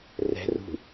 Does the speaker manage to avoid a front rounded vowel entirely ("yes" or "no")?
yes